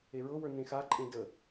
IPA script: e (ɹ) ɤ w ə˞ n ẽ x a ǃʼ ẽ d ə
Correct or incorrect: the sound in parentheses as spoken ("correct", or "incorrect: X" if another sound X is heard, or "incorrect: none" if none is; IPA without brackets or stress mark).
correct